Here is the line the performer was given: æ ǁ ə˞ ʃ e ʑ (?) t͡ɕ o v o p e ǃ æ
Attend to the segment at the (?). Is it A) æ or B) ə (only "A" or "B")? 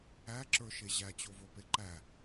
A